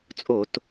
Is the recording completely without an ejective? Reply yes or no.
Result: no